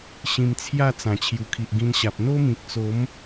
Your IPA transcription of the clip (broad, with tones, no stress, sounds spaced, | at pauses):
ɕ ĩ˧ m t͡sʰ j a˥˧ t͡s ã˨˩ t͡ɕʰ j u˨˩ kʰ i˨ ʔ ɡ ĩ˧ n ɕ a˨ p̚ n̪ o˦ m ĩ˨ k̚ t͡s o˨˦ m